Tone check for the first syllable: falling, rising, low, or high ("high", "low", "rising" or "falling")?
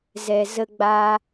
low